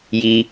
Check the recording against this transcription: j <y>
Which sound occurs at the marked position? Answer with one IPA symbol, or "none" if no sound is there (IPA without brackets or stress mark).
i